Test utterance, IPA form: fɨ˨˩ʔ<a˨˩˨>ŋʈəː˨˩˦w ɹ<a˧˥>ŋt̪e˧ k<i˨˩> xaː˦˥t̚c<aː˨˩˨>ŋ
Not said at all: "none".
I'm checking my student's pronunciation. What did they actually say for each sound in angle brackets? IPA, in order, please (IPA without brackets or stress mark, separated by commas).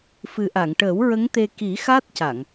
a˨˩˨, ə˧˥, i˨˩˦, a˨˩˨